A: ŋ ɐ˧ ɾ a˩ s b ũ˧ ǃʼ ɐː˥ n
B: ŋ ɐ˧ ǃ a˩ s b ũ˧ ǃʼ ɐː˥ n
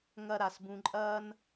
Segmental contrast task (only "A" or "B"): A